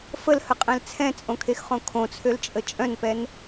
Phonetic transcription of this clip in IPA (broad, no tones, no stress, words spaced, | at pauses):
fəlhəqʼɛ̃l t͡sʰɛ̃t͡sʼõkʰexχõ kʰõt͡sʰølt͡ʃʼə t͡ʃʼœ̃npɛn